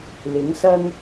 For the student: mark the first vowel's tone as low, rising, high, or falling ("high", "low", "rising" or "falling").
rising